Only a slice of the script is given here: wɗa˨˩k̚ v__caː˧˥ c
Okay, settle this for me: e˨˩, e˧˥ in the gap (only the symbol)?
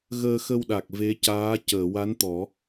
e˧˥